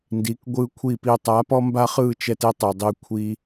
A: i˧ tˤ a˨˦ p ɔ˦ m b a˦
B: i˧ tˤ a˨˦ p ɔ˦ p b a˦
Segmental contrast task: A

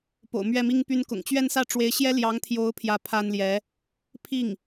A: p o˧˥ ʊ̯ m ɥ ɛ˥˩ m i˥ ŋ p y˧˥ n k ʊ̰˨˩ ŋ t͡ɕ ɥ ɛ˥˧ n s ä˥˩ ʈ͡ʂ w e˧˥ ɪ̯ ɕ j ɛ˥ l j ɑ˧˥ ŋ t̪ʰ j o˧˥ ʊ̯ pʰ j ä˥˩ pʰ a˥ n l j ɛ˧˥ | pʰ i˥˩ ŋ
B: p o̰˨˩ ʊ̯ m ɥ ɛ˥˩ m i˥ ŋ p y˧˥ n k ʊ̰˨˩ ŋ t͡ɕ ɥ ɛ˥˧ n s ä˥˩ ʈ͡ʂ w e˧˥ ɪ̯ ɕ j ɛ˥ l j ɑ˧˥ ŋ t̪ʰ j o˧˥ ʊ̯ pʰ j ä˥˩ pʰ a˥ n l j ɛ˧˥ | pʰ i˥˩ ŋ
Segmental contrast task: B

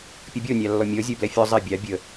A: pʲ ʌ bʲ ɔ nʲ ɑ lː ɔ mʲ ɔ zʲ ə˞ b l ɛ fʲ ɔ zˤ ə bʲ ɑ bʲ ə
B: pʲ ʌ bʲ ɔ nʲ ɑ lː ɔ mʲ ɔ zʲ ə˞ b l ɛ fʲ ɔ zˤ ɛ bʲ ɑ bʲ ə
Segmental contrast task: B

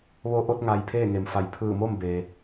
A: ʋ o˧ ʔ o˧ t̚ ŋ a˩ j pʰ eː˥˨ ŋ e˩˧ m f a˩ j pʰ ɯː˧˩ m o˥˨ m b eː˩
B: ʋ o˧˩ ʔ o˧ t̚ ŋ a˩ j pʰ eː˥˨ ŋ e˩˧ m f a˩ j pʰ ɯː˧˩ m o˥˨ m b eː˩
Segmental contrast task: A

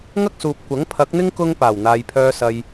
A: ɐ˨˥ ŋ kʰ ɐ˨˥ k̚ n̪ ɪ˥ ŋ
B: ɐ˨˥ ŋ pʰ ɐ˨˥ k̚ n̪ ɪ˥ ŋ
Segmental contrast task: B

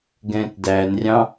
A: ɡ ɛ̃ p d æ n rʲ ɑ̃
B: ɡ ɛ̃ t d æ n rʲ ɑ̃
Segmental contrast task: B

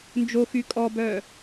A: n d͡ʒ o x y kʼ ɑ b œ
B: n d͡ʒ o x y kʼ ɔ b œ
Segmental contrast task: B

